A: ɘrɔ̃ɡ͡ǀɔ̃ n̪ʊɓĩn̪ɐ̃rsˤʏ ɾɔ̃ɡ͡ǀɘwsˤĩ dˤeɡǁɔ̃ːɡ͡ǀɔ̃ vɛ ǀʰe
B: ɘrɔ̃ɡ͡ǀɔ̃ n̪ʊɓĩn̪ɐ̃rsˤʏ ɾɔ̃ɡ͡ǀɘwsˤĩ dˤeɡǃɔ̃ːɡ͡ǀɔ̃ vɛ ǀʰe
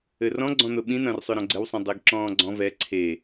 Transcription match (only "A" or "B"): A